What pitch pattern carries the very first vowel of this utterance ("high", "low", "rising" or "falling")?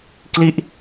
falling